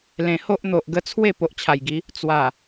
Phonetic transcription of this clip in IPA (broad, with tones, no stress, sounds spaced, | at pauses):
l ẽ˨˩ h o˦ ʔ n̪ o˨ ʔ ɡ ə˧ t͡sʰ w e˥˧ p o˨ ʔ t͡ɕʰ a˨˩ j ɡ i˨˦ | t͡s w a˨˩